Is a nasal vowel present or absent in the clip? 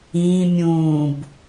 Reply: present